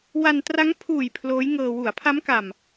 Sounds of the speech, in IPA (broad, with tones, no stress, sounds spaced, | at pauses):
w a˧ n t r a˦˥ ŋ pʰ uː˨˩ j pʰ l oː˦˥ j ŋ ɤː˧ w u˩˦ a̯ pʰ a˦˥ m k a˨˩ m